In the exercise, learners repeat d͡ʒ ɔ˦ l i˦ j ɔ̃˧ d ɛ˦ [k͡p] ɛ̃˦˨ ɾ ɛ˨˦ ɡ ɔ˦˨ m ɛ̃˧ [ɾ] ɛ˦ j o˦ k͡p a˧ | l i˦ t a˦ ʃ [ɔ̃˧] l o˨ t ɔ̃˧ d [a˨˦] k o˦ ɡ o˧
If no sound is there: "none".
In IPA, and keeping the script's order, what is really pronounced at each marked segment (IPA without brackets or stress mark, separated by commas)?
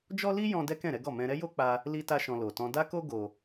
k, ɾ, ɔ̃˧, a˦